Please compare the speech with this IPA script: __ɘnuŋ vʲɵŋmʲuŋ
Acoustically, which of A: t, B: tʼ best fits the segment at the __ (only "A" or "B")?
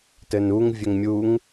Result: A